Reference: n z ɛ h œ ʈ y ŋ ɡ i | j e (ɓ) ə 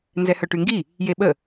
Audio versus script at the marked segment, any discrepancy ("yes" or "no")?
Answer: no